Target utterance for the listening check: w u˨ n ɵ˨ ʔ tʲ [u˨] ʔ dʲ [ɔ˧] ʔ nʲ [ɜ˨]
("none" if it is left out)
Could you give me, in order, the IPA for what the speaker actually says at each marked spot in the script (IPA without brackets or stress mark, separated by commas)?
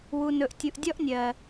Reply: u˨, ɔ˦, ɜ˨